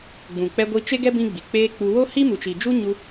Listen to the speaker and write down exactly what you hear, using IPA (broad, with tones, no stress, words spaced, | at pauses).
ɡ͡bũ˨ k͡pɛ˧ ɡʷi˧t͡ʃe˦ɡɛ˦ bĩ˦ɡ͡bi˨ k͡peː˦k͡pu˧ wo˦hi˦ mu˨t͡ʃi˨d͡ʒu˦ ɲu˧